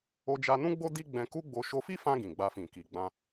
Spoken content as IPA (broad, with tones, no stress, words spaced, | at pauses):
o˧d͡ʒa˧nũ˦ɡ͡bo˦ di˦ ɡ͡bɛ̃˧ku˦ɡ͡bo˧ ʃo˧fi˦fã˧ ɡĩ˨ɡ͡ba˧fĩ˨ ki˨ɡ͡bã˧